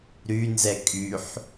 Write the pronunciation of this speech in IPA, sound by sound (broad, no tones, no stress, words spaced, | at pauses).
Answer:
ɾynzɛ kʼyħ